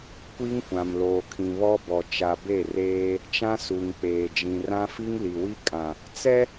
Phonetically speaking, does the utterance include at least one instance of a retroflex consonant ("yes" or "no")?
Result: no